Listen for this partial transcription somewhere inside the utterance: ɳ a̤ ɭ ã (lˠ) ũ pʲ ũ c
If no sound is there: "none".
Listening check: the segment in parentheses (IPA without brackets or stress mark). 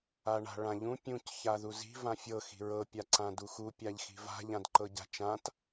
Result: ʎ